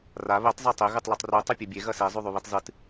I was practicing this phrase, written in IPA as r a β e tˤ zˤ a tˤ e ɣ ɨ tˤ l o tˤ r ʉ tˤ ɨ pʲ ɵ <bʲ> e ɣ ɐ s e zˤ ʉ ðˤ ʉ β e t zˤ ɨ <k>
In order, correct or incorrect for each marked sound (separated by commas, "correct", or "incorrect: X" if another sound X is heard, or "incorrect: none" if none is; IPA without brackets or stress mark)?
correct, incorrect: t